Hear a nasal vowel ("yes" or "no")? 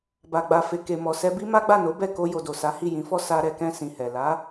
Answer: yes